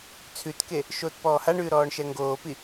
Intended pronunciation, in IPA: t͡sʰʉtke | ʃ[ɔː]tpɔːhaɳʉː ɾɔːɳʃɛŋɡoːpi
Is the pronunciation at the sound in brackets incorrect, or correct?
incorrect